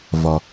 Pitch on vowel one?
low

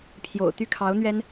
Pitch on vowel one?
low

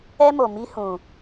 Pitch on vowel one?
high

